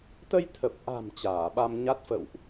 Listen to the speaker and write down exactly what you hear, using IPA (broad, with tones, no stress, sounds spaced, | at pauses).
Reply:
t̪ ə˧ j t̪ʰ ə˨˩ p̚ ʔ a̤˨˩ m t͡ɕ aː˧˩ ɓ a˧ m ɲ a˦˥ t̚ f ə̰˧˨ w ʔ